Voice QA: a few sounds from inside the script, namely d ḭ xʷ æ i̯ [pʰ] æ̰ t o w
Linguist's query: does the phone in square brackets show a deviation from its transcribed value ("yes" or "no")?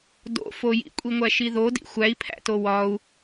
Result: no